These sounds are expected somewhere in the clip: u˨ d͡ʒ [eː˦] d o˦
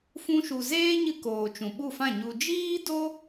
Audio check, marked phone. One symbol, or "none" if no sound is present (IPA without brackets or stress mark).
iː˦